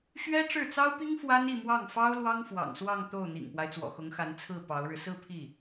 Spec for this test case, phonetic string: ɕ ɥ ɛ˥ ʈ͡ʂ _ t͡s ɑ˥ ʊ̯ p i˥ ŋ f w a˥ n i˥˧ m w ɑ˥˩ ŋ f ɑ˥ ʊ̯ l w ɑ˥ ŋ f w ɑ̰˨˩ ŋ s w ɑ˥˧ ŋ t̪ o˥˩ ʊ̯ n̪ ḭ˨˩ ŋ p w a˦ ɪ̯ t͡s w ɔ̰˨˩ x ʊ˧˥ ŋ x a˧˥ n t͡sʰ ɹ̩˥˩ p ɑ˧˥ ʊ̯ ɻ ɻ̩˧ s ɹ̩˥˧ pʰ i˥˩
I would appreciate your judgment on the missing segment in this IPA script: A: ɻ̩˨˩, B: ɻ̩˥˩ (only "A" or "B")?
B